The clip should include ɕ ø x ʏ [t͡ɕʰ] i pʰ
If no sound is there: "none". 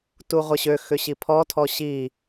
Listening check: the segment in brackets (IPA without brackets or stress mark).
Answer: ɕ